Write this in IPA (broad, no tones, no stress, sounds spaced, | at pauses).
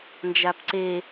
n d͡ʒ a p ǀ e